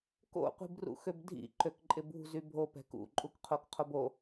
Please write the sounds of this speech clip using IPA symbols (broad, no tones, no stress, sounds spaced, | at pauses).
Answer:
k o̰ qʷ i̤ b r ṵ x ø b dʱ ḭ ǃ ø k ǃʼ ɪ b ṳ z y bʱ o p ɛ̤ k ṵ ǃʼ u k qʰ o k qʰ o b o